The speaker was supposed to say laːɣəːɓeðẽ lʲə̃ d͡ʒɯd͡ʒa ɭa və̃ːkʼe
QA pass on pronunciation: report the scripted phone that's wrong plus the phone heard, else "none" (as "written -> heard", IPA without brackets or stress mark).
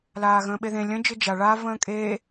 əː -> ə̃ː